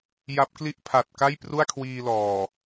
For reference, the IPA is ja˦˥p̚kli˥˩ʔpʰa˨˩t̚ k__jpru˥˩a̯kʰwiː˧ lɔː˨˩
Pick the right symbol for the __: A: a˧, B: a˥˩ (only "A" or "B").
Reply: B